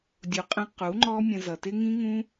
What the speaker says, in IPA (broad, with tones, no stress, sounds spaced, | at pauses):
dʲ u˨ qʼ ə̃˧ q u˨˦ ŋ͡ǃ ɔ˦ mʲ ə̃˧ z ʌ˨ t ɪ˦ ŋ ĩ˦ ŋ ũ˦